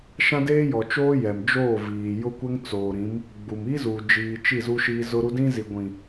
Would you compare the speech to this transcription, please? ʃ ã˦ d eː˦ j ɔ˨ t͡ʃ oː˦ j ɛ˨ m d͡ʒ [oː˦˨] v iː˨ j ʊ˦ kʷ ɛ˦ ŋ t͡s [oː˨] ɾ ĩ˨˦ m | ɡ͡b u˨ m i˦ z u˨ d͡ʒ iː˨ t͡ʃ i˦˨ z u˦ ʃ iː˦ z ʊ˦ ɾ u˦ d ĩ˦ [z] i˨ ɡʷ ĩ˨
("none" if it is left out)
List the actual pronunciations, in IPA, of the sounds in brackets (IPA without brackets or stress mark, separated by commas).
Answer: oː˦˨, oː˨, z